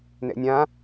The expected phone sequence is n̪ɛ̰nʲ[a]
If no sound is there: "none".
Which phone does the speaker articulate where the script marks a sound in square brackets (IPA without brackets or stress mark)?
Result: ã